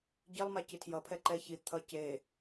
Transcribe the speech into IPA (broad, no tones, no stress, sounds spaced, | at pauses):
ɟ i lˠ m a c i tʰ j ʌ pʰ ɛ ǃ ɛ ç i t̪ʰ ʌ c e